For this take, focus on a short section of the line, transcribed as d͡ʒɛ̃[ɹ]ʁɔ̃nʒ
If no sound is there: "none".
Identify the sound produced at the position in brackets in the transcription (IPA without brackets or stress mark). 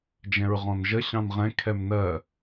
ɹ